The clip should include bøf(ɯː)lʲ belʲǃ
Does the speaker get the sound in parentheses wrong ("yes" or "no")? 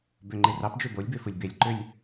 yes